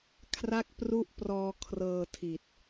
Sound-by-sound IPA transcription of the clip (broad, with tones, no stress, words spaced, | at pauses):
kʰra˥˩k̚pru˥˩ʔprɔː˧ kʰrɤː˧ tʰi˨˩t̚